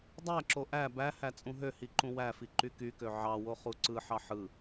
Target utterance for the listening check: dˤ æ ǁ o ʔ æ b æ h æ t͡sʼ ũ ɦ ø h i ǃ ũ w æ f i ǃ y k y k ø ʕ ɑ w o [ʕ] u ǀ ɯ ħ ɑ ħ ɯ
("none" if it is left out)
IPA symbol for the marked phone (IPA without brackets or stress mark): χ